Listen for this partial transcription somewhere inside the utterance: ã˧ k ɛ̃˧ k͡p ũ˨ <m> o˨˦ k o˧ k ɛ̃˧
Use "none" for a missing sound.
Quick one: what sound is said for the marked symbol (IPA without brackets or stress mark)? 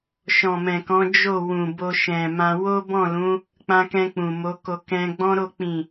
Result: m